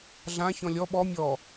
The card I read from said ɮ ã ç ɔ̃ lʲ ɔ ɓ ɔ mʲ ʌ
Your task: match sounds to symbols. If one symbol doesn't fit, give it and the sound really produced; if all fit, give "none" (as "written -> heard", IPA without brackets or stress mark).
ʌ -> ɔ